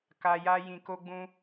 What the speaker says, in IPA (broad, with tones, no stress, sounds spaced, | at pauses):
k a˨ j a˧ j ĩ˨ k o˧ ɡ͡b ũ˧